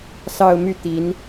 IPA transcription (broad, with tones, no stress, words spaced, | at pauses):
sɑ˥˧ʊ̯ my˥˩t̪i˧˥n